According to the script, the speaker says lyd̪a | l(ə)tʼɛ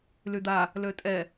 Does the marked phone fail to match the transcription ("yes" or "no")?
yes